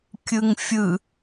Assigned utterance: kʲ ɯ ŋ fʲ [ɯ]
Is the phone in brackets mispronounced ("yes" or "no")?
no